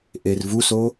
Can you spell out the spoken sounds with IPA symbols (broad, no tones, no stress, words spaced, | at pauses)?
ʔervuso